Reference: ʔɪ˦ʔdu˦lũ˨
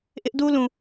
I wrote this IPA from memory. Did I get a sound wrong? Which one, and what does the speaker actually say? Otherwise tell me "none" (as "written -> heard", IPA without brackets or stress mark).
none